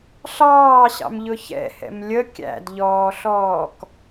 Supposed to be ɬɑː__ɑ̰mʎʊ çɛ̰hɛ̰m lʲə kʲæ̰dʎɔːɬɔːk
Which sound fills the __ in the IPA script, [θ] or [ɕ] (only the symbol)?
ɕ